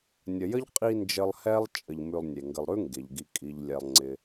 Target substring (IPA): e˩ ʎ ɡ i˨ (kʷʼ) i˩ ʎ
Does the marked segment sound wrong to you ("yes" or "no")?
yes